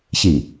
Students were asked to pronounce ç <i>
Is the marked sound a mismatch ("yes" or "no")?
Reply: no